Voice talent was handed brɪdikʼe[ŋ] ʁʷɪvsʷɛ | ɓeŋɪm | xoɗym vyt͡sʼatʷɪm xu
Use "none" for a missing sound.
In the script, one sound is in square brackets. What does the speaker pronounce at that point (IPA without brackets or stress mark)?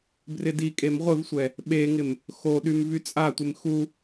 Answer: m